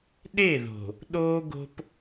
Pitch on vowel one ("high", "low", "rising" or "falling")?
falling